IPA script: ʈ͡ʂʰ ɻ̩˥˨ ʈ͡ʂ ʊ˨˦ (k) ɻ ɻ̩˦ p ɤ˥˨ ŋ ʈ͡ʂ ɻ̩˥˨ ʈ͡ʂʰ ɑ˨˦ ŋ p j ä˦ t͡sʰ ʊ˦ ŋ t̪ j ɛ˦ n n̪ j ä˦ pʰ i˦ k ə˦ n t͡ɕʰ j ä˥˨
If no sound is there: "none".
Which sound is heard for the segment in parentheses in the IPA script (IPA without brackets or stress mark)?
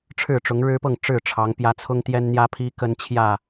ŋ